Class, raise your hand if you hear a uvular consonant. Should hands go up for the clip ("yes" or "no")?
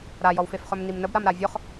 yes